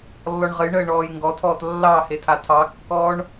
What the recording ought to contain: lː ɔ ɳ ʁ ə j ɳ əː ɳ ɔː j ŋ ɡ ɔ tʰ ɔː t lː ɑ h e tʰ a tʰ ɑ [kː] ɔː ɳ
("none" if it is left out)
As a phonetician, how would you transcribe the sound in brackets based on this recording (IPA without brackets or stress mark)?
kː